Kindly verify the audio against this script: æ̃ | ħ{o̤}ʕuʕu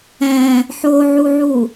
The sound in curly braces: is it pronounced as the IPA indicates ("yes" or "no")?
no